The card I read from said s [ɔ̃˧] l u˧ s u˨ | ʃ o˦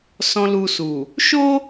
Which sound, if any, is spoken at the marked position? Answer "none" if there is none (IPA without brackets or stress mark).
ɔ̃˧